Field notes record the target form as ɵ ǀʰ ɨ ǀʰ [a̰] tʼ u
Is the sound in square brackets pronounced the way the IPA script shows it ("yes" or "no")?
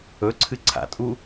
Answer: yes